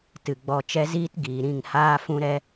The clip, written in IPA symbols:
t ɨ˨ ɡ͡b ɔ˧ t͡ʃ ɛ˦ z iː˦ t ɡ iː˨ ɾ ĩ˦˨ ŋ h aː˦ f ũ˦ ɾ ɛ˦

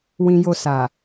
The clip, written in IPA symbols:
w ĩ˦ j o˦ s a˨

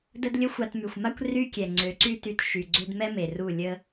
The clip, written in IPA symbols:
d ə˦ d lʲ ə˦ xʷ a˧ t m y˨ xʷ m a˦ kʷ r y˧ kʲ ɛ˨ ŋ͡ǀ ø˨˦ ǀ y˦ t y˧ t ʃ y˨ ɡ͡ǀ ø˧ d m ɛ˦ m e˨ r u˦˨ lʲ ə˦

